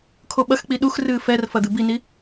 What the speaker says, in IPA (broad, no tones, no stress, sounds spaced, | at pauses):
kʰ o ɓ ɐ x k͡p i ɗ u x r ɨː f ɛ r f ɐ d̪ ɨ b i n i